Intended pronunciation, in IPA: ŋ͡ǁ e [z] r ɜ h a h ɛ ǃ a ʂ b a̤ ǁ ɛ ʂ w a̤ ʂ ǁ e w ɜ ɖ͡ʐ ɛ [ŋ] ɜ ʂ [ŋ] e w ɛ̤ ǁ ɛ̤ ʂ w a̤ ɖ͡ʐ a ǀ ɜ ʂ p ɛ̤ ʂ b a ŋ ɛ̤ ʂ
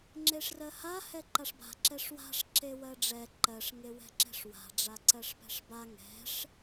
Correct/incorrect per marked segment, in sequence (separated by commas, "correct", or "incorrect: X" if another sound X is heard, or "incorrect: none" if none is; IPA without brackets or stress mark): incorrect: ʂ, incorrect: ǃ, correct